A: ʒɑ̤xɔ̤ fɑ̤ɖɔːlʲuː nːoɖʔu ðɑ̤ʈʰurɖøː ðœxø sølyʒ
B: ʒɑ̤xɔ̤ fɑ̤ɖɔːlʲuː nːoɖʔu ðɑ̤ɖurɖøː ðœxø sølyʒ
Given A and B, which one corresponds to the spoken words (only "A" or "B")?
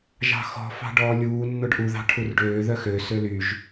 A